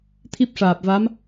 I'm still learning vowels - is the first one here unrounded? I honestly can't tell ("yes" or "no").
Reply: yes